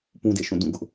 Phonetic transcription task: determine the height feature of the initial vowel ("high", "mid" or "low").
high